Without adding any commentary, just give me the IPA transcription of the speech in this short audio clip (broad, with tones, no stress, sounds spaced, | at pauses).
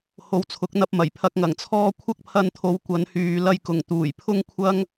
h o˨˧ w t͡sʰ ʊ˨˥ k̚ n̪ ɐ˧ p̚ m ɐ˨˩ j pʰ ɐ˧ k̚ ŋ ɐ˨˩ ŋ t͡sʰ ɔː˥ kʷʰ ɐ˥ k̚ pʰ ɐ˧ n t̪ʰ o˨˧ w kʷ ɐ˨˧ n h yː˨ l ɐ˧ j k ʊ˨˩ ŋ t̪ uː˨˩ j pʰ ʊ˥ ŋ kʷʰ ɐ˥ ŋ